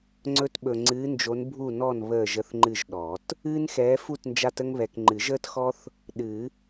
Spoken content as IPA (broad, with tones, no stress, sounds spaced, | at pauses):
ŋ͡ǀ ɵ˦ t ɓ ɵ˨ ŋ͡ǀ ɨː˨˦ n d͡ʒ o˨˦ n bʱ u˥˨ n ɔ˥˨ n β əː˥˨ ʒ ə˦ θ ŋ͡ǃ ɨ˥˨ ʒ ɗ ɔ˨˩˦ t | ɨː˦ n x ɛː˨˦ f u˥˨ t n d͡ʒ a˦ t ə˦ ŋ β ɛ˨ k ŋ͡ǃ ɨ˨˩˦ ʒ əː˦ t x ɔ˦ θ | ɗ ɨ˨˩˦